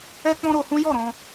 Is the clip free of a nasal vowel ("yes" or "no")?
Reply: no